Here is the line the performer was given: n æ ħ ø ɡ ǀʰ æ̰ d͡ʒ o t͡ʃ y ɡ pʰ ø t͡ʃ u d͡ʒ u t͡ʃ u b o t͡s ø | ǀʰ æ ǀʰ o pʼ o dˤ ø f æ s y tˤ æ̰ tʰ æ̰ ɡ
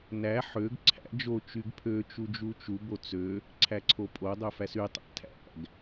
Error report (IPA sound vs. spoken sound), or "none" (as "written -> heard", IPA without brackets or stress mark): none